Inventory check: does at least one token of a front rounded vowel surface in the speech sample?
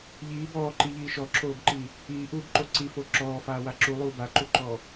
no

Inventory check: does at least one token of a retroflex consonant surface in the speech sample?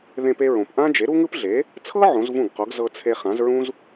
no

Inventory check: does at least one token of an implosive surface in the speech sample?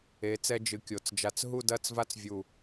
no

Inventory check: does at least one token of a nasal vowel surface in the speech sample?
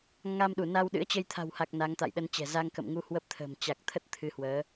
no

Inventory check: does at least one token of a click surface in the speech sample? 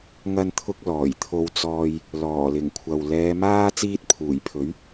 no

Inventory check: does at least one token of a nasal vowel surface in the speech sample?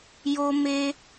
no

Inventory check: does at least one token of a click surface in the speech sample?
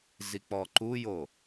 yes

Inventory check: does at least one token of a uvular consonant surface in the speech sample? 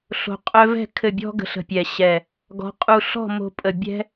yes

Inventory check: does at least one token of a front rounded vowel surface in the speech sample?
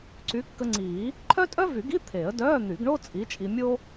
yes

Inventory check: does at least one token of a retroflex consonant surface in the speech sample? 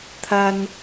no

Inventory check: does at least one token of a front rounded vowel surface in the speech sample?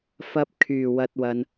yes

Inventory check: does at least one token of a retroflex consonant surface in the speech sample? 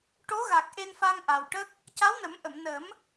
yes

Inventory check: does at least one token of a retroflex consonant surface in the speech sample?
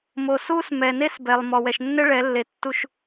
yes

